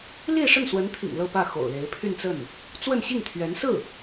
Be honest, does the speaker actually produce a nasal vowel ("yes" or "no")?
no